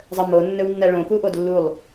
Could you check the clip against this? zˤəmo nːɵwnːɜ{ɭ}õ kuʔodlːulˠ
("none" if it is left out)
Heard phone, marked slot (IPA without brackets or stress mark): ɭ